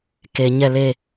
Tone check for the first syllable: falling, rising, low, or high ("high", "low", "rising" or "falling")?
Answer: low